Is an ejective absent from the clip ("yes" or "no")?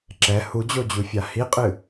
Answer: no